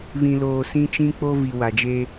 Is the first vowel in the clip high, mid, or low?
high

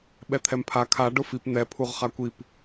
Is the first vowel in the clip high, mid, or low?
mid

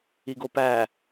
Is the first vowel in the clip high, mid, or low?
high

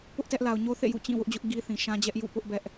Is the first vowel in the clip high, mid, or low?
high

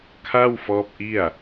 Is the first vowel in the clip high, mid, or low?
low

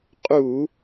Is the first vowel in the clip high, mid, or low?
high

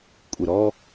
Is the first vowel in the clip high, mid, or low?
high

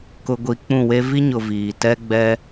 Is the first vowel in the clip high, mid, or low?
high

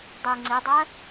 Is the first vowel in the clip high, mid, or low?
high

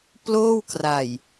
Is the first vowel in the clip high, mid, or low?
mid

